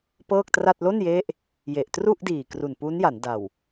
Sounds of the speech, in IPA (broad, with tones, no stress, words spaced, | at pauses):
pɤː˥˩k̚tra˥˩t̚ lo˥˩nje˦˥ʔ | je˨˩ʔtru˥˩ʔdiː˨˩ kru˨˩npu˦˥nja˩˦n da˨˩w